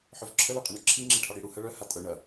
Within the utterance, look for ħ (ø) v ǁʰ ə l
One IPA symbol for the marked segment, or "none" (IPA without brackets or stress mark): œ